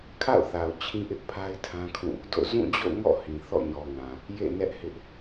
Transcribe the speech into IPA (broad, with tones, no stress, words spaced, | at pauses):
kʰa̰˦˨ʊ̯θa˨ʊ̯ t͡ɕʰĩ˦ʔɪ˦ʔ pʰa˦ɪ̯tʰã˦kʰũ˦˨ | do̰˦˨ zũ˦˨d͡ʑo̰˦˨ŋɔ̰˦˨ hĩ˨ θɔ̰˦˨ɲɔ˨ŋã˨ | jḛ˦˨nɛ˦ʔhɪ˦ʔ